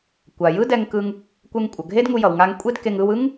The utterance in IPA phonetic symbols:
kʷ a˩ j ɯ˥ d ɛ˧ ŋ k ɯ˧ ŋ | kʷ ɛ˧ ŋ kʷʼ ʌ˩ ɡʱ e˥ d ŋ u˧ j ʌ˩ w ŋ a˧ ŋ kʷʼ e˥ d k e˧ ŋ ɯ˧ w ɯ˥ ŋ

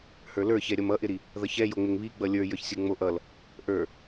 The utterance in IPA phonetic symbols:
h ə˞ l ə˞ ç ɛ ɾʲ ʌ m ʌ ʔ ɪ ɾ i | ð ʌ ç ɛ j o ŋ͡m ɪ ŋ β i ɡ͡b ʌ lʲ ə˞ j ə˞ ç sʲ ə˞ ŋ͡m o ʔ ʌ l | ʔ ə˞

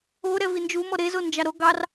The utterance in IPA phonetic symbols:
o ɾ ɛ v i n d͡ʒ u m ɔ ɾ e z o n d͡ʒ ɑ ɾ o ɡ ɑ r

